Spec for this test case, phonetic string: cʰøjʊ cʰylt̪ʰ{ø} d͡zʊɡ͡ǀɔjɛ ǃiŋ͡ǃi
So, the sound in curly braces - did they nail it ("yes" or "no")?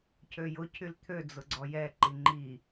yes